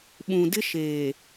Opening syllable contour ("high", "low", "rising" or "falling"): low